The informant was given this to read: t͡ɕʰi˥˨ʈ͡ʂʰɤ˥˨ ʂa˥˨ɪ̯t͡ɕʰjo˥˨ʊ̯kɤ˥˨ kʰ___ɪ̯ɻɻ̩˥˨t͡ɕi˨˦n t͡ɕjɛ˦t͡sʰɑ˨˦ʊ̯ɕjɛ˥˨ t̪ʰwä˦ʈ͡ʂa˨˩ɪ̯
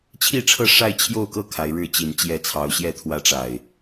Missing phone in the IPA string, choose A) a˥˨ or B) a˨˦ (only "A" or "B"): B